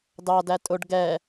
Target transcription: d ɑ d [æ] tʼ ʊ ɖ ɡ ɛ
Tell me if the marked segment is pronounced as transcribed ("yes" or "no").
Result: yes